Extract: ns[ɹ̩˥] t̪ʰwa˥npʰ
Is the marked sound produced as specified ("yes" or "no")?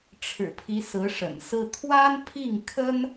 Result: yes